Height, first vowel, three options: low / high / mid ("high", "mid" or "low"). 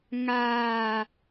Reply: low